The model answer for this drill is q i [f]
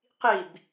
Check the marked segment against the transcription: incorrect: b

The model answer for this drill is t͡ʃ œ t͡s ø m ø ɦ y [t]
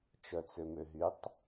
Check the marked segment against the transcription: incorrect: tˤ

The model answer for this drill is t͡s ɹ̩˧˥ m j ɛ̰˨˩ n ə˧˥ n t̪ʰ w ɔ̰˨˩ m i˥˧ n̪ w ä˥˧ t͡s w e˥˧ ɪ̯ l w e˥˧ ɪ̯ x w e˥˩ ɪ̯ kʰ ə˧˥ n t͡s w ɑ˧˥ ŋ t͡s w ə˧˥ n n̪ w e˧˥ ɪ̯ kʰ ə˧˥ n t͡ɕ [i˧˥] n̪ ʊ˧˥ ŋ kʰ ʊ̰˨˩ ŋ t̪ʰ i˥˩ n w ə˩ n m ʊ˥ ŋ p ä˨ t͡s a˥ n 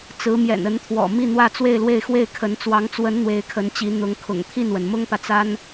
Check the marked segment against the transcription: correct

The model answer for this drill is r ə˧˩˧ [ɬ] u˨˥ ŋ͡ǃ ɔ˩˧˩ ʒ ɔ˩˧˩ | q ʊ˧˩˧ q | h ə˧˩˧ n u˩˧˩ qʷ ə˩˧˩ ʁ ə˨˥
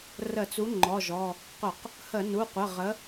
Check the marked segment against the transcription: incorrect: t͡s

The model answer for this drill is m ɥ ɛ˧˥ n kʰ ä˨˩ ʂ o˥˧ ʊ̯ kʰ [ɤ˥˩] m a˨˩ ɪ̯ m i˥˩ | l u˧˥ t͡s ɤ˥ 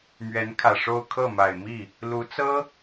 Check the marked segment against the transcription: correct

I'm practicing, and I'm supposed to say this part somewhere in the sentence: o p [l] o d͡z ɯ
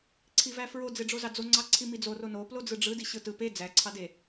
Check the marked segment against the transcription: correct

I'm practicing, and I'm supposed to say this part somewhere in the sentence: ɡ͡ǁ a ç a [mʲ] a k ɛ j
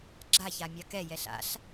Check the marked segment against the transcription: correct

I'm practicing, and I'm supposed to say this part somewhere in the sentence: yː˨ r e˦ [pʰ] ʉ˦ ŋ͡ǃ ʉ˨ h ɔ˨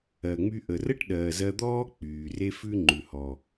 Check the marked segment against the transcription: incorrect: f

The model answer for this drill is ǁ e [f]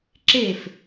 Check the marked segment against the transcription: correct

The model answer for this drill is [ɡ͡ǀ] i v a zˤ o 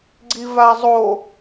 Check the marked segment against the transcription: correct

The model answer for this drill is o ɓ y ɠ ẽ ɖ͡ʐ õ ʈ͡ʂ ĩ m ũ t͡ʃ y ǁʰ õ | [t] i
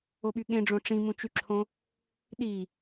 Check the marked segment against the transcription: incorrect: ɗ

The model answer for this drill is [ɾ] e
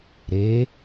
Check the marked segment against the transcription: correct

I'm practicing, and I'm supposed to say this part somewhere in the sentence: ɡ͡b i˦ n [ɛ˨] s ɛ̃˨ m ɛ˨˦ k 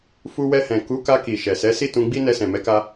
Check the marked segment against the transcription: incorrect: ɛ˧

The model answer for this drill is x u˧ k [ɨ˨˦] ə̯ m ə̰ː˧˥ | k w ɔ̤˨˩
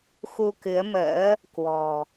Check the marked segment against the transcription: correct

